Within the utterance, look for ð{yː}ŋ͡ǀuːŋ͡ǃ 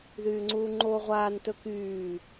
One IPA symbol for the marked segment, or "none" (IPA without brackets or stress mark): yː